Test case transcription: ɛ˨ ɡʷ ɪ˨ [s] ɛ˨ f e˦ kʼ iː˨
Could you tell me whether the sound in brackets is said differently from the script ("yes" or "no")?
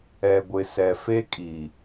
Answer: no